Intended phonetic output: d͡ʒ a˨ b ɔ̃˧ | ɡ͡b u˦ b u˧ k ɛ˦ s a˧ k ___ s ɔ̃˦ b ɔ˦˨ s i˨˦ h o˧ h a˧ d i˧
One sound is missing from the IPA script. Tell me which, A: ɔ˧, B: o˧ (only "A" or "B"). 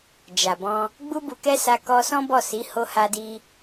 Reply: A